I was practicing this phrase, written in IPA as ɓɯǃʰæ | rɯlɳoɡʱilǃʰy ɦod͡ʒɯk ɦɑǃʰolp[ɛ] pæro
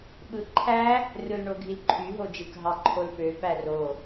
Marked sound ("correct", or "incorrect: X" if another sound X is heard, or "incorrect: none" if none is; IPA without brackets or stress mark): incorrect: ø